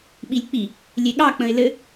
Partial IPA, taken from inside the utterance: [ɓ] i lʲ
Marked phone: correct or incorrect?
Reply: correct